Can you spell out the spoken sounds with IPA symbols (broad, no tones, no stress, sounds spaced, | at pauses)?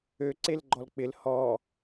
ø ǀ e l ɡ͡ǃ ɔ l k͡p ɪ l h ɔ